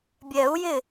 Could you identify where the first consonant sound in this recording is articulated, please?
labial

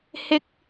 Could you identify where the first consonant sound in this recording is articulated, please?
glottal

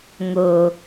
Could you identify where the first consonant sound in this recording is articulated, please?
velar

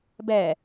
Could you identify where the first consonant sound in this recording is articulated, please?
labial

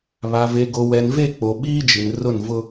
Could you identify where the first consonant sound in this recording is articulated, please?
labial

